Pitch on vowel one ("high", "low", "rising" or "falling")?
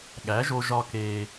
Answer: rising